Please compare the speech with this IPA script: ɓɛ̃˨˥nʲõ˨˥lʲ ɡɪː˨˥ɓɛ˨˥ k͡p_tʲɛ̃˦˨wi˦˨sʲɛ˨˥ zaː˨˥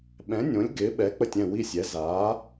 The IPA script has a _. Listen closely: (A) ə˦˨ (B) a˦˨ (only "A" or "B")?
A